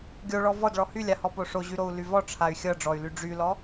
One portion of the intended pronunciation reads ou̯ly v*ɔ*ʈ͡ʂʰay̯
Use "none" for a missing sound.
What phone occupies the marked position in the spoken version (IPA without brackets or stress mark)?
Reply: ɔ